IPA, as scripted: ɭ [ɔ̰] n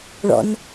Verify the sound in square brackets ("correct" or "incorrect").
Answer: correct